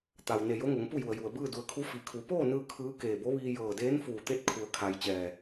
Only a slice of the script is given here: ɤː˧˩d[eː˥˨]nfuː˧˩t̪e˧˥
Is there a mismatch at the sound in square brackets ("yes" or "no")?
yes